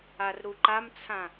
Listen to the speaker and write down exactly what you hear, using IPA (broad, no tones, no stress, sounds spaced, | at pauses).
a r ɾ u ǃ a m t͡sʰ ã